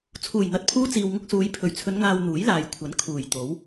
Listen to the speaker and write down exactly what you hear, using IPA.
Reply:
t͡sʰ uː˨˩ j n̪ ɐ˨ t̚ pʰ uː˧ t͡s iː˨ w ŋ ʊ˧ k̚ s uː˨˧ j pʰ ɵ˨˩ ɥ t͡sʰ ɵ˨˧ n ŋ aː˨ w n̪ uː˨˥ j l aː˨ j kʷʰ ɐ˨˥ n kʰ uː˨˩ j t̪ o˨˥ w

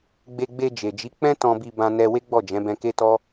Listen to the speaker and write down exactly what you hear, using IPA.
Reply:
ɡ͡b e˧ ɡ͡b e˧ d͡ʒ e˨ d͡ʒ i˨˦ k͡p ɛ̃˦ t ɔ̃˧ b i˧ b ã˧ n ɛ˧ w e˦ ɡ͡b ɔ˦˨ d͡ʒ ɛ̃˨˦ b ɛ̃˧ k e˦ t ɔ˦

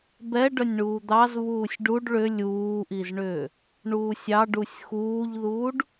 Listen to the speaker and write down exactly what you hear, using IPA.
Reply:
b ɛ ɖ œ nʲ ɳ uː d̪ ɑ z β uː sʲ ɖ u ɖ ɭ ʏ lʲ uː ʔ i z ɳ ʏː | ɳ uː sʲ ɑ ɖ u sʲ x uː ʎ ð uː ɖ

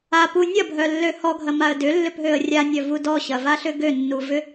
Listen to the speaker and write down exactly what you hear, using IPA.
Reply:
a p u nʲ ɐ bʱ œ lː ø h ɔ ɡʱ ɐ m a ə̯ d ʏ lː ʏ p ɦ ø ə̯ rʲ a nʲ œ v u d ɔ ɕ ɐ v a ɬ ʏ ɡ ø nː u v ʏ

